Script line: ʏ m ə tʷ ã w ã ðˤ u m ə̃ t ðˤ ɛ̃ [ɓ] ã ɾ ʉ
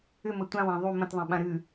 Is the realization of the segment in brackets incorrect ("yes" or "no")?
no